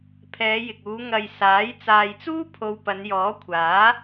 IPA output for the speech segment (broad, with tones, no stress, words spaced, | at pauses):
pʰɛː˨˧jɪ˨k̚uː˨˧ ŋɐ˨j saː˨˥j t͡saː˨jt͡suː˥ pʰo˧wpɐ˨˧njɔː˨˥ kʷʰaː˨˥